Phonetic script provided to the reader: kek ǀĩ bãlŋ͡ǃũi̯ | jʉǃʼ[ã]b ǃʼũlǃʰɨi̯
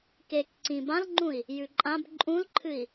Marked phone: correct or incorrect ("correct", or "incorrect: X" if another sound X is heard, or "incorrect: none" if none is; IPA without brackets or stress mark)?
correct